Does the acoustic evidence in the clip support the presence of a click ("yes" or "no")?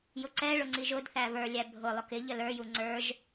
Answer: yes